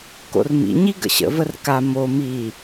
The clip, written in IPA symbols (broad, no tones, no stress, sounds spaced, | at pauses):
k o̰ r m ḭ ɲ i ɡ ə̰ ɕ ə̰ v ə r k a m o m i